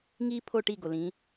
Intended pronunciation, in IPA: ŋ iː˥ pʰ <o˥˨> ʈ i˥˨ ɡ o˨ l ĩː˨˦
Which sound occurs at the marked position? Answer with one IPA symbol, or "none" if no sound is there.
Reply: o˥˨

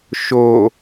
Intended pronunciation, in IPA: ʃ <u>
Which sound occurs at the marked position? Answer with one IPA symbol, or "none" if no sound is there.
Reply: o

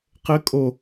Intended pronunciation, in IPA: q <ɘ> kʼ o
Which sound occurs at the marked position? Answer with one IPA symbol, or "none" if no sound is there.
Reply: ɘ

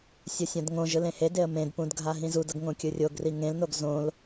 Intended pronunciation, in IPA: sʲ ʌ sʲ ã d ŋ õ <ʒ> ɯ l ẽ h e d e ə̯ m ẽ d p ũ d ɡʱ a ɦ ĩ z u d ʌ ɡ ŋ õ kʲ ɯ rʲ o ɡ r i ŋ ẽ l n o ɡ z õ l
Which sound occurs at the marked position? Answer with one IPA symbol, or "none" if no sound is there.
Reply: ʒ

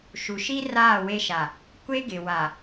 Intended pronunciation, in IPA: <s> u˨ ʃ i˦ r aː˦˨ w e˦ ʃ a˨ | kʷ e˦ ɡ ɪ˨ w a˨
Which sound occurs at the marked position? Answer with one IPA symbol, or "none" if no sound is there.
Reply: ʃ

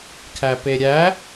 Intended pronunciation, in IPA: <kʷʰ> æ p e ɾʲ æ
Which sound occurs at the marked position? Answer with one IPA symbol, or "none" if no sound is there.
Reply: kʰ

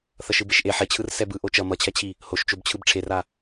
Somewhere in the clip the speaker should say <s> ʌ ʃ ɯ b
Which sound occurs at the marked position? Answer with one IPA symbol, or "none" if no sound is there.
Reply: θ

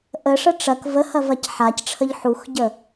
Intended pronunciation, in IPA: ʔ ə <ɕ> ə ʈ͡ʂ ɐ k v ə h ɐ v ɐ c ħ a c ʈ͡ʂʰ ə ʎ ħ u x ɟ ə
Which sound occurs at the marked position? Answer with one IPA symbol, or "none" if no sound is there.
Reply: ʂ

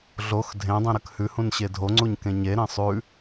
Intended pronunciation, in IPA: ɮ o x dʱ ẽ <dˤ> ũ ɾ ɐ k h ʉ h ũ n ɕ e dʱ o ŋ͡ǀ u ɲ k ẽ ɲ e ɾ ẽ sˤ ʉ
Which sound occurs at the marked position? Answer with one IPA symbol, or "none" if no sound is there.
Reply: dˤ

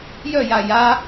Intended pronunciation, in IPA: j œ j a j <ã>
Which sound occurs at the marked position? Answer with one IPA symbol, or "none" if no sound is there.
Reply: a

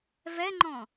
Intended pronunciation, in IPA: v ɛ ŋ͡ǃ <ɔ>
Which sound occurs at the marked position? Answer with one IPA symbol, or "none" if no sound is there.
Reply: ɔ̃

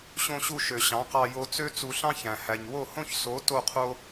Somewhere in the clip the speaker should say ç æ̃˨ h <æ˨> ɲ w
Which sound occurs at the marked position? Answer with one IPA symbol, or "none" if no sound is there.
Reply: æ˨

